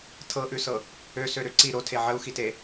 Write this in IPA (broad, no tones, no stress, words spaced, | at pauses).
tʰɤʔʉsɤ | øsøɾø ǀi ɾotʰe ʕəu̯xite